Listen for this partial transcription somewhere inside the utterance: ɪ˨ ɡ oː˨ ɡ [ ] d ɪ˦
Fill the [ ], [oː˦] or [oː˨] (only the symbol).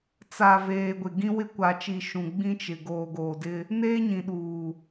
oː˨